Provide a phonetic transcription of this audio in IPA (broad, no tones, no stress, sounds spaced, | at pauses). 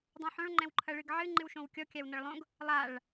dˤ ũ ħ õ ɭ ŋ͡ǃ ɛ̃ w ǃʰ ɐ ɭ ɨ ɡ ʕ ɨ ŋ͡ǃ ɨ w ʃ õ w kʲ ɔ kʲ a w n ɐ ɭ lˠ õ ɡ | lˠ a ɭ